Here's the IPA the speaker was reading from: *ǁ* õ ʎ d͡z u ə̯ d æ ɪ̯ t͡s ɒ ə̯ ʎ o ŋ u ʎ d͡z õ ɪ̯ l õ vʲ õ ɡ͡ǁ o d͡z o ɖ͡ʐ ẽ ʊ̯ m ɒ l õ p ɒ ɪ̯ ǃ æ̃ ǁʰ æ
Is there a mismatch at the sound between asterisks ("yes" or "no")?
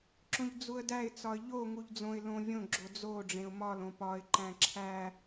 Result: no